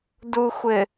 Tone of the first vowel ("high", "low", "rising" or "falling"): low